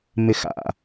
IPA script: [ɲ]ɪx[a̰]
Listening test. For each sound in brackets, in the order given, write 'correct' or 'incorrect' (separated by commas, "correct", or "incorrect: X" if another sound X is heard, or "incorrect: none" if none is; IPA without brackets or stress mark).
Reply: incorrect: m, correct